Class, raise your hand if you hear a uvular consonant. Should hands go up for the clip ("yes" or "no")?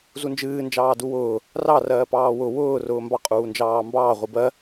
yes